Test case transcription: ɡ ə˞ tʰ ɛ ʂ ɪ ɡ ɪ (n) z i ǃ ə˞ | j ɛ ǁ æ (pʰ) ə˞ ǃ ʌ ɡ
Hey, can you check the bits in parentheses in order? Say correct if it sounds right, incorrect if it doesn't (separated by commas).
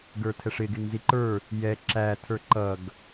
incorrect, incorrect